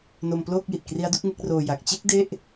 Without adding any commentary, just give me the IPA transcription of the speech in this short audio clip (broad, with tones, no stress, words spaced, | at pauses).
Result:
no˧mploː˥˩k̚ji˨˩t̚ kri˦˥a̯du˥˩k̚ŋe˦˥k̚roː˧ ja˨˩k̚t͡ɕe˥˩k̚ de˥˩ʔ